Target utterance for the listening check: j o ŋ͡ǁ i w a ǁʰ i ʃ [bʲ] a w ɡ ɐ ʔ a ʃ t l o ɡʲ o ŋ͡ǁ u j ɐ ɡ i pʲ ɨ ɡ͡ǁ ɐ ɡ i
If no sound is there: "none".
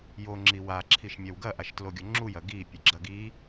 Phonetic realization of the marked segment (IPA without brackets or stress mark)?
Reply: mʲ